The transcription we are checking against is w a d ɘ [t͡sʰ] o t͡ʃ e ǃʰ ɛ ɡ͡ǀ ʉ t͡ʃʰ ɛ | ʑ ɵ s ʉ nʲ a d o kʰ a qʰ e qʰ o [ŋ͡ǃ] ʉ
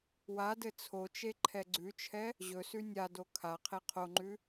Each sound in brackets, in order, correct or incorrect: correct, correct

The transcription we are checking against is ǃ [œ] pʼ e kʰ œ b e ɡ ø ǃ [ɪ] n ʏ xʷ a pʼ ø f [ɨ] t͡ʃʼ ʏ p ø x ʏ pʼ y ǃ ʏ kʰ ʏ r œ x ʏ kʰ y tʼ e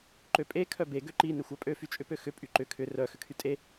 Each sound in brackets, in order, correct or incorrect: incorrect: ø, incorrect: i, incorrect: y

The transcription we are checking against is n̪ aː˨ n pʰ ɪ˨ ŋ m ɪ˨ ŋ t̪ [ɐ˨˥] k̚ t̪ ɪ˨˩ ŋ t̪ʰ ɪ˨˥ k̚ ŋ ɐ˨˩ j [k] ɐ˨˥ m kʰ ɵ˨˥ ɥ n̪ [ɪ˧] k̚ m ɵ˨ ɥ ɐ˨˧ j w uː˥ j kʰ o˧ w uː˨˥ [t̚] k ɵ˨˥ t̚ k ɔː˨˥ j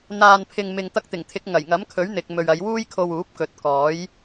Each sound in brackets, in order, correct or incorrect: incorrect: ɐ˧, incorrect: ŋ, incorrect: ɪ˨, incorrect: p̚

